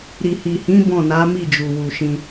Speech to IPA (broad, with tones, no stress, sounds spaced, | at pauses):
ɾ i˨ h i˨ h ĩ˨˦ b ɔ̃˦˨ n a˨˦ m i˦˨ d͡ʒ u˨ w u˨ ʃ ĩ˧